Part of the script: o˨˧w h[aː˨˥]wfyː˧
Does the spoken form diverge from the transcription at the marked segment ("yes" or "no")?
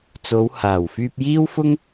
yes